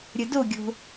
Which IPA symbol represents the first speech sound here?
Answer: ɾʲ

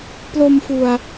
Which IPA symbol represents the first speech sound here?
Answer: p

